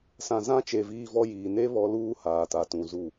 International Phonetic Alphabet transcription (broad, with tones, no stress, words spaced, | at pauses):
sã˨zã˦t͡ʃe˨ viː˦vɔ˦jiː˨ ne˦ βɔ˦luː˦ haː˨ta˨tũ˨zu˦˨